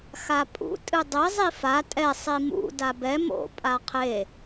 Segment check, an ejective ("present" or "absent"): present